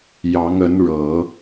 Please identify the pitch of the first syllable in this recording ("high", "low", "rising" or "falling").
rising